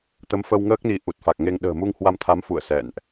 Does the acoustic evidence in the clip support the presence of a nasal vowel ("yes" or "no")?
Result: no